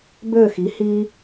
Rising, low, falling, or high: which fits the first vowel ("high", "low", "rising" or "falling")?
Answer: low